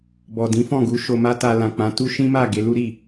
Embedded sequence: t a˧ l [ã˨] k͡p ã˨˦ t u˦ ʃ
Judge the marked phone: correct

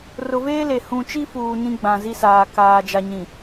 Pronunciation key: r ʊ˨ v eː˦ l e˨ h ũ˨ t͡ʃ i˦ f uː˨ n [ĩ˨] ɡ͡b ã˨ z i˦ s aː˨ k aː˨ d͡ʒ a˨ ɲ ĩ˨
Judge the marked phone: incorrect: ĩ˦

